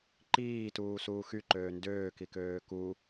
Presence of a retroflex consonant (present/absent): absent